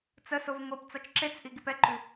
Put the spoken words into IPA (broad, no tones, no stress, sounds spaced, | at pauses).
t͡s ə s o v ŋ o p t͡s ɒ t͡ʃ ǁ e t͡s ʔ i ɡ i p ɛ ǃ ʉ